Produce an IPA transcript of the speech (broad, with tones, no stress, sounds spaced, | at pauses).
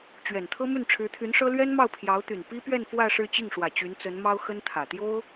t͡ɕ ɥ ɛ˨˩ n t̪ʰ ɤ˥ m y˥˩ n ʈ͡ʂʰ ɻ̩˧˥ t̪ʰ y˧˥ n ʂ ɤ˥ l ɥ ɛ˥ n m ɑ˥˩ ʊ̯ pʰ j ɑ˧˥ ʊ̯ t̪ y˨˩ n p i˥ p ɥ ɛ˥˧ n f w ä˥˧ ʂ ɻ̩˥˧ t͡ɕ i˥˩ ŋ ʂ w ä˨˩ t͡ɕ y˧˥ n t͡s ə˧˥ n m ɑ˥ ʊ̯ x ə˥ n t̪ʰ ä˨˩ t̪ j o˥ ʊ̯